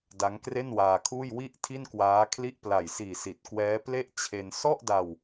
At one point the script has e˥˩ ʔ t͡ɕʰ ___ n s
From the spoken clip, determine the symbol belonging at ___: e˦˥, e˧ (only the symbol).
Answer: e˧